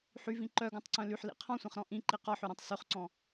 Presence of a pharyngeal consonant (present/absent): present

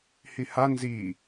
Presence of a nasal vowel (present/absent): absent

